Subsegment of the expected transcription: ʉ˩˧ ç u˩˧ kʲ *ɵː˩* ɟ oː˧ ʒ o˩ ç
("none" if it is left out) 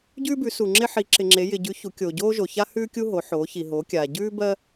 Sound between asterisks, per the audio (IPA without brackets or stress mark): oː˩